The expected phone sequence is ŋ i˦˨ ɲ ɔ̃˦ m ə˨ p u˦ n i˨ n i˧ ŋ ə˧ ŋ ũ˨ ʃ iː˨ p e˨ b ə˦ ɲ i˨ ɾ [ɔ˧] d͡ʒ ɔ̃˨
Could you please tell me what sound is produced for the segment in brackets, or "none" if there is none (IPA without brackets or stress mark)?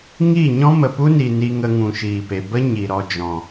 ɔ˧